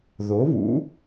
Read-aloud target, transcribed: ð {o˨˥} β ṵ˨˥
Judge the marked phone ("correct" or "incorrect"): correct